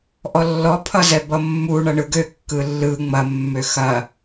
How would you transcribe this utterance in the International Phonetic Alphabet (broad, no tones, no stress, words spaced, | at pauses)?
ʔɔlːɔ pʰʌzɛbʌmːu ɳʌɳɯɡø kːɯlːɯ ŋ͡mɐ mːøxɐ